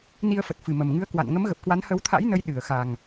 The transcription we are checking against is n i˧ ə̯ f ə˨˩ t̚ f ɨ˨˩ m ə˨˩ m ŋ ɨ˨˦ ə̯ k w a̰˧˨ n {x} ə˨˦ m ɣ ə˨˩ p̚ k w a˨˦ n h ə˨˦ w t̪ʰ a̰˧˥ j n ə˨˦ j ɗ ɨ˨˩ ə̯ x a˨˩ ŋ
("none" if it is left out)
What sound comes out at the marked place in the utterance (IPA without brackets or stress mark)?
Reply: ŋ